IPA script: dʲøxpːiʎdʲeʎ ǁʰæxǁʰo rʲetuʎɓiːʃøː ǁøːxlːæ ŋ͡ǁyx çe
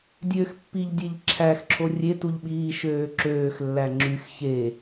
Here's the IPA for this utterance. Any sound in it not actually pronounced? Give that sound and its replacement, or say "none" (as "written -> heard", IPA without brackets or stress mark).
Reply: none